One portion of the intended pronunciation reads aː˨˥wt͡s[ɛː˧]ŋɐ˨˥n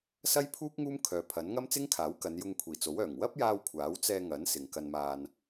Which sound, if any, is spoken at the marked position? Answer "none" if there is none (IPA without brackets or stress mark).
ɛː˧